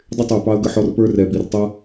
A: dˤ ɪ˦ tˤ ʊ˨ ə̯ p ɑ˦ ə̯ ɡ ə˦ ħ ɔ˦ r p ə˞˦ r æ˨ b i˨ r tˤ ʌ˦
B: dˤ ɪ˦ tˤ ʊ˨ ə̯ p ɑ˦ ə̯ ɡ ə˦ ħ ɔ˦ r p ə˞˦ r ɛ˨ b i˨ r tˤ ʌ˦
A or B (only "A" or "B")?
B